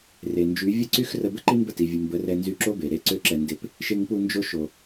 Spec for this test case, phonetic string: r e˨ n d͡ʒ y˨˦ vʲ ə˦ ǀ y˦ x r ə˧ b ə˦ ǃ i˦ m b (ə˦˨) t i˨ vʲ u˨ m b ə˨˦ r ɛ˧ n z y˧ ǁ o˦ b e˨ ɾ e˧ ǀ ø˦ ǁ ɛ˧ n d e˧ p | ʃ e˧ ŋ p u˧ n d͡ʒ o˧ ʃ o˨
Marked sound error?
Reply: no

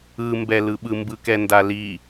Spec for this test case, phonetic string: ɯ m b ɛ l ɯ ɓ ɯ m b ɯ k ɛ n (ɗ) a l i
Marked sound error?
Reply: yes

